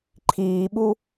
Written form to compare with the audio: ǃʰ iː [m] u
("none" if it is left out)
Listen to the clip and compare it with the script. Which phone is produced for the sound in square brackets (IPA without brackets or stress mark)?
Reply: ɓ